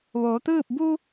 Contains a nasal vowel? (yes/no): no